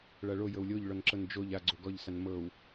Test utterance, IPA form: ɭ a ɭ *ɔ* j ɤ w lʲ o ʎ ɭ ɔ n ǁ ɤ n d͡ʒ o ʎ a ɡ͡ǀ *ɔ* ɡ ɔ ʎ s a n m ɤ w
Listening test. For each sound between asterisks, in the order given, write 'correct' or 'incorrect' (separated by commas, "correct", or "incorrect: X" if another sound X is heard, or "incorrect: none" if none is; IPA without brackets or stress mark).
incorrect: o, incorrect: o